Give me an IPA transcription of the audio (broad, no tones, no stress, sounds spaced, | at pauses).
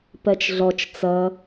p ɜ t͡ʃ ɮ ɔ t͡ʃ t͡s ʌ